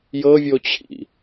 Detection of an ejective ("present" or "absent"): absent